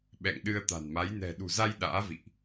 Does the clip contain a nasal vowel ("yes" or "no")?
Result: no